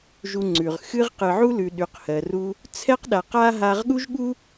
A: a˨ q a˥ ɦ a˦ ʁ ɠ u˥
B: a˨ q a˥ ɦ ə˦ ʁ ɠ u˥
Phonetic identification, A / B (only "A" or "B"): A